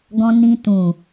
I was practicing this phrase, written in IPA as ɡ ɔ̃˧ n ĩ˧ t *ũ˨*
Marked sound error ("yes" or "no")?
no